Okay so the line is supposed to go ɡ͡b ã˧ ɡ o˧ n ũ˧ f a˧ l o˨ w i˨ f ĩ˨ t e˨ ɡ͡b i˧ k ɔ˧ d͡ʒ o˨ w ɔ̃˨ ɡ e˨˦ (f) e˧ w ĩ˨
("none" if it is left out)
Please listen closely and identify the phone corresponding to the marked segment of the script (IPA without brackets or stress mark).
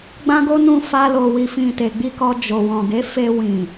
f